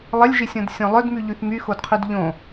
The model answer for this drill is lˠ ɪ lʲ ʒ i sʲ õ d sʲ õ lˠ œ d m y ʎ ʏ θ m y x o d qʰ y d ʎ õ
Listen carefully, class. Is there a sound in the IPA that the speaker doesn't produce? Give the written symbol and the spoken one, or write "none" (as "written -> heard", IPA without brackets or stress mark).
ʏ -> y